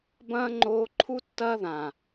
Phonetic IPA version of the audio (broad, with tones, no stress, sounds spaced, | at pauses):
b ɐ̃ː˦ ŋ͡ǃ oː˦ ǃʰ u˦ tː ɐː˦ ð ã˨